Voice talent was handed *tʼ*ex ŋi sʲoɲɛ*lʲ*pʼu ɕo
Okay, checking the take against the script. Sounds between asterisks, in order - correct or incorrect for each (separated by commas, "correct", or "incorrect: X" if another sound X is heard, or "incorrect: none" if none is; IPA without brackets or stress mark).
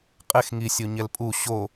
incorrect: qʼ, incorrect: l